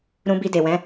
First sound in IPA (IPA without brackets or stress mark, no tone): ɾ